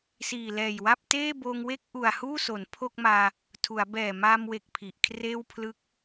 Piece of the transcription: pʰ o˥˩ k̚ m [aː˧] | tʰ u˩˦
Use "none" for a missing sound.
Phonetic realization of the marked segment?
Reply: aː˧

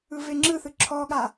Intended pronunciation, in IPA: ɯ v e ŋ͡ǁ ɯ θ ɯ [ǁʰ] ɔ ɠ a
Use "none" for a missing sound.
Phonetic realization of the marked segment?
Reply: ǁʰ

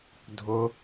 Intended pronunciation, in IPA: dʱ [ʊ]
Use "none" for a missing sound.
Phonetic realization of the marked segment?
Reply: ʊ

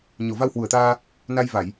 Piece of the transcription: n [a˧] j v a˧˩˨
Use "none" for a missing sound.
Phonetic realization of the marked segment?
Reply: a˧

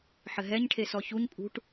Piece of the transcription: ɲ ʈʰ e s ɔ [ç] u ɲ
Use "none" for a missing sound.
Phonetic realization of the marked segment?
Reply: ç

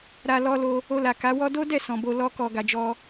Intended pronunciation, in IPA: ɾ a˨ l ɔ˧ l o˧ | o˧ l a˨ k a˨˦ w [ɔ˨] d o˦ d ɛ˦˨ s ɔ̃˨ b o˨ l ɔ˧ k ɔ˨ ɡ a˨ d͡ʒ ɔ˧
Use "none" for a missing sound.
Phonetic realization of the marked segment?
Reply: ɔ˦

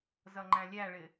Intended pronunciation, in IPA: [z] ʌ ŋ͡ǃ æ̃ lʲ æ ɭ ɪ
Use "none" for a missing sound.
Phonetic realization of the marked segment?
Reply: z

